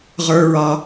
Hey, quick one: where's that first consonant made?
uvula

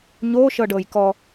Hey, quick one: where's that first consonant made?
palate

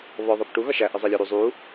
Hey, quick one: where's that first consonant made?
lips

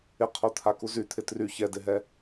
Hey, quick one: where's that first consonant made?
uvula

